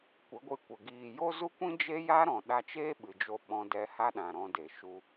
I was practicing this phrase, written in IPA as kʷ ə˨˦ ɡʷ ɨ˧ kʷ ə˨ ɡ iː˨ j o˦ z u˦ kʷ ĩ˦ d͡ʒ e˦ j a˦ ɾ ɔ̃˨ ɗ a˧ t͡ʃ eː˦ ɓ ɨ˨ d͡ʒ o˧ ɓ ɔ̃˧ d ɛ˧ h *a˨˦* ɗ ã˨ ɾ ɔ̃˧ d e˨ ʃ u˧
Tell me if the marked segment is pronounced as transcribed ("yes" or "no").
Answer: no